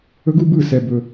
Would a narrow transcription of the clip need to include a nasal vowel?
no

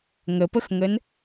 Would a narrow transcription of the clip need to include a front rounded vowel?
no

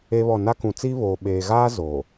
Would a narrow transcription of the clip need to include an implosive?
yes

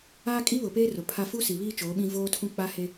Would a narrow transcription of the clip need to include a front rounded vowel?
no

